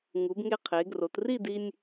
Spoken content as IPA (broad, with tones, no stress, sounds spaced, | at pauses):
ŋ u˩˧ b ŋ e˧ qʰ e˩˧ ɡ r o˩˧ t r i˥˧ d i˧ nʲ